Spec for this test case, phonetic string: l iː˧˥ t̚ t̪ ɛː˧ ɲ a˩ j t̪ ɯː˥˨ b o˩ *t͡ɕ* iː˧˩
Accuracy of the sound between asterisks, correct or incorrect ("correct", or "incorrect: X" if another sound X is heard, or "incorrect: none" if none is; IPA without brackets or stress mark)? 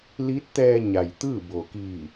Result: incorrect: k